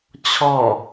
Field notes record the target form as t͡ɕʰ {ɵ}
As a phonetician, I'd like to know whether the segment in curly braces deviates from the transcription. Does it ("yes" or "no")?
yes